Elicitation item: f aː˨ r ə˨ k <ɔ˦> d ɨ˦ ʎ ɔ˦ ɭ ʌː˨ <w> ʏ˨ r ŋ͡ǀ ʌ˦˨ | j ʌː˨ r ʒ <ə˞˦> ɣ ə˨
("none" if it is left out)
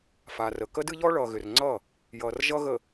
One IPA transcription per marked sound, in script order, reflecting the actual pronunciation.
ə˦, ɣ, ʌ˦

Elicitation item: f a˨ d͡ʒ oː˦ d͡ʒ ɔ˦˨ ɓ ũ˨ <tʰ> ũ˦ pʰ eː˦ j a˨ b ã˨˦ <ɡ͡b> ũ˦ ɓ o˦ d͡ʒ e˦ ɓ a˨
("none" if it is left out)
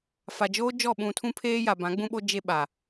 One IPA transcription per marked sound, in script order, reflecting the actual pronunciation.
tʰ, ɡ͡b

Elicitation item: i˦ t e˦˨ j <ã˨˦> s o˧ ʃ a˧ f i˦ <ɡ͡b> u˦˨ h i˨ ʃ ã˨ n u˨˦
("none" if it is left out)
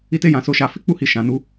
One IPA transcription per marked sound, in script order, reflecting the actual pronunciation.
ã˨˦, k͡p

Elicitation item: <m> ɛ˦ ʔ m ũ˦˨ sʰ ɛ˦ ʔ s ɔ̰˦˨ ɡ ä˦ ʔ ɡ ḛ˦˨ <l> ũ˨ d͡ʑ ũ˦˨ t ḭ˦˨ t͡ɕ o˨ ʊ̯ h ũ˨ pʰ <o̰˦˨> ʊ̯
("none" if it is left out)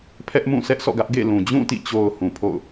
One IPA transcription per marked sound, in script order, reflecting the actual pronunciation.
pʰ, l, o̰˦˨

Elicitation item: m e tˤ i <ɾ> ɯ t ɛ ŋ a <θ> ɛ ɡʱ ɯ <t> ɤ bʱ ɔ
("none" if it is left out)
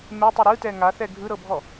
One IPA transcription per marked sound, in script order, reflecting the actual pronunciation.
ɾ, θ, ɾ

